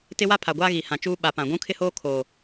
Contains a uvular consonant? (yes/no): no